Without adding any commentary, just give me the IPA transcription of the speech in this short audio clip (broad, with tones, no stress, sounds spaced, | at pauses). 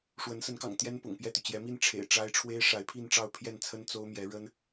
ʂ w ə˧˥ n s ə˧˥ n k ɑ̰˨˩ ŋ t̪ j ɛ˥ n p ʊ̰˨˩ ŋ p j ɛ˥˩ t̪ y˩ t͡ɕ j ɛ˧˥ m i˥˩ n ʈ͡ʂʰ ḛ˨˩ ɪ̯ ʈ͡ʂ a˥ ɪ̯ ʈ͡ʂʰ w e˥ ɪ̯ ʂ a˧˥ ɪ̯ pʰ i˥˧ n ʈ͡ʂ ɑ˥˧ ʊ̯ pʰ j ɛ˥˩ n t͡sʰ ə˥ n t͡s o˥ ʊ̯ m j ɛ˧˥ ɻ ə˥ n